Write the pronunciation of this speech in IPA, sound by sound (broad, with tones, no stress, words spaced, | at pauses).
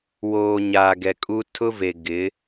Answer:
woː˨ ɲaː˨ɡɛ˨kʼu˦ tʰʊ˦ve˨ ɡɪ˨˦